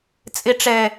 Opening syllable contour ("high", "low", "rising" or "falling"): low